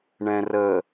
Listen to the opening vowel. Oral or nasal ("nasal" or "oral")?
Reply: nasal